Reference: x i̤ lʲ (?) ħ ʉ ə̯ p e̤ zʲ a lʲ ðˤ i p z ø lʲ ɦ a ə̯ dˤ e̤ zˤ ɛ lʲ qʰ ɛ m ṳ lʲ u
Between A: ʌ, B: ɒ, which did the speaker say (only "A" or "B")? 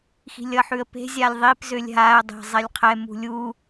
A